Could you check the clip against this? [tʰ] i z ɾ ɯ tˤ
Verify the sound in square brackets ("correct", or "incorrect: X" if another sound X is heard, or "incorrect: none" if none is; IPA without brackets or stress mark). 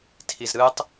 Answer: correct